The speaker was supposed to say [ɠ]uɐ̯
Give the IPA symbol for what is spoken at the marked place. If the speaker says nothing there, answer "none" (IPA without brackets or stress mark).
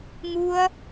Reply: ŋ